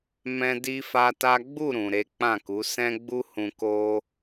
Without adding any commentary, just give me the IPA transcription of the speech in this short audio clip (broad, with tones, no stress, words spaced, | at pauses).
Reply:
mɛ̃˦di˦fa˦ta˦ ɡ͡bu˦˨ ɾũ˨ ɾe˨˦k͡pã˦˨ku˨˦ sɛ̃˦ɡ͡bu˦hũ˧ ko˦